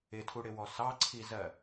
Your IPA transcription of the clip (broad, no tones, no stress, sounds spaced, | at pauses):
ɪ tʰ u ɽ ɪ w ɔ s ɑ ǀʰ i z ɜ